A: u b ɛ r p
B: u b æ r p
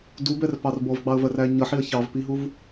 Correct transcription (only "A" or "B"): A